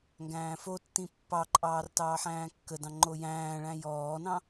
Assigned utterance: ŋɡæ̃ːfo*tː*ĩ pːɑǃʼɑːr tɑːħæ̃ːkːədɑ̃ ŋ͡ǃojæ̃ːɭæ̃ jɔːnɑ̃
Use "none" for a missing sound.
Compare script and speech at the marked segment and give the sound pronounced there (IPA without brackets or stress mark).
tː